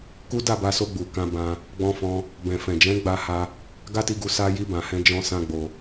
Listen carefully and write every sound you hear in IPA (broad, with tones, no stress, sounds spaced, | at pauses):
k u˦ d a˦˨ b a˧ s o˧ ɡ͡b u˨ k ã˧ b ã˧ | ɡ͡b ɔ̃˧ f ɔ̃˧ | b ɛ̃˨ f ɛ̃˨ d͡ʒ ɛ̃˨˦ ɡ͡b a˧ h a˧ | ɡ a˦ t i˧ ɡ u˧ s a˧ j i˧ b ã˨ h ɛ̃˧ d͡ʒ ɔ̃˦ s ã˦ ɡ͡b o˧